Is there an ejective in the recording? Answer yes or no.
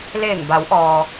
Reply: no